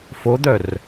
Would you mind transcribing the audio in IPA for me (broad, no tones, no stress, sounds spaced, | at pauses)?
f o d̪ œ r